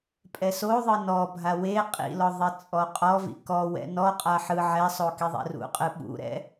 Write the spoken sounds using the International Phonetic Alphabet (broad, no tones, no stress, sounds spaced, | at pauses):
pʼ ɛ s o ðˤ ɯ n ɔ bʱ a w e qʼ ḭ l ɔ ðˤ i t͡sʼ ɔ qʼ ɔ v ḭ k ɔ w ɛ̰ n ɔ qʼ a ħ ɯ ʕ ɛ sˤ o k i ðˤ ɛ̰ r ṵ qʼ ɯ ɓ ṵ ɾ ɛ̰